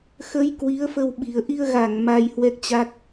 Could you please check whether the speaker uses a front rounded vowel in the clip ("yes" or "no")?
no